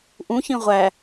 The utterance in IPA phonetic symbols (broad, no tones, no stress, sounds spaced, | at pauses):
ʔ ũ ç ĩ ʁʷ æ